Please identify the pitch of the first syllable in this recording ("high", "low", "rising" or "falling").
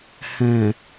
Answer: low